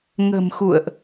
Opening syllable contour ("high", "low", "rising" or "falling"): low